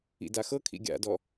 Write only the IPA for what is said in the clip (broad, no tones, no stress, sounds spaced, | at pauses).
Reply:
ḭ d a x ɤ kʰ ḭ ɡʲ a̰ d ɔ